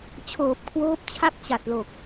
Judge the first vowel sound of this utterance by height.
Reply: mid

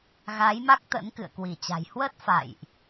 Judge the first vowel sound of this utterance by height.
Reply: low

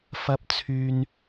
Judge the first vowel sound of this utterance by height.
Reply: low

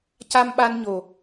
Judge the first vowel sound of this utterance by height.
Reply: low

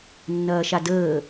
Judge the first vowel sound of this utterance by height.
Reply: low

